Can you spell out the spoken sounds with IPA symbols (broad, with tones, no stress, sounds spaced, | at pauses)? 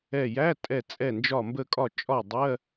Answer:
ɛ˧˩ j æ˧˥˧ tʼ ɛ˧˩ t͡sʼ ɛ˧˩ n d͡ʒ ɒ˧˩ m b ə˧˩ kʼ ɒ˧˩ t͡ʃʼ ɒ˧˩ dˤ ɜ˧˥˧